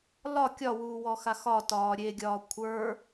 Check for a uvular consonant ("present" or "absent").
absent